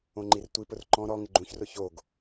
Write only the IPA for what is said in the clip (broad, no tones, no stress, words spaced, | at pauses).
õŋ͡ǃirtʷipʊr ǃɔ̃ ɾɔ ŋɪɡ͡ǃũçrʊ çoɡ